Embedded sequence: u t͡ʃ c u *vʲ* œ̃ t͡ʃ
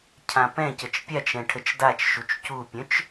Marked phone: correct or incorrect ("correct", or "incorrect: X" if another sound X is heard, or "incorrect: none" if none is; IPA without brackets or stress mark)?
incorrect: pʲ